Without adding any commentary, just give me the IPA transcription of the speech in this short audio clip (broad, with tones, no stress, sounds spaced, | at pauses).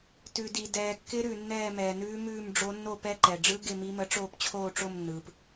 t ʉ˩ d i˩ d ɛː˩ kː ɪ˧˥ ɾ ʉ˩ nː ɛː˦˨ m ɛː˩ n ʉː˧˥ m ʉː˦˨ m ɖ͡ʐ o˧˥ nː o˦˨ p ɛ˧˥ ǃ ɛ˩ ɖ͡ʐ ɯ˧˥ ɡ ɪ˦˨ m i˧˥ m ə˧˥ ʈ͡ʂ oː˦˨ p t͡ɕʰ oː˦˨ ʈ͡ʂ o˦˨ m nː ɯː˩ p